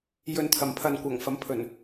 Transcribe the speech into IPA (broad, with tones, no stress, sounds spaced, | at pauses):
j ɵ˨ n t̪ʰ ɐ˨˩ m pʰ ɐ˨ n kʷ ɐ˨˩ ŋ f ɐ˨˥ m pʰ ɵ˨˩ n